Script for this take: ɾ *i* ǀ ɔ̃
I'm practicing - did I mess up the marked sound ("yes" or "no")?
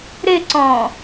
yes